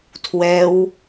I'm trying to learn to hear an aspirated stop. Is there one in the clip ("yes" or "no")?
yes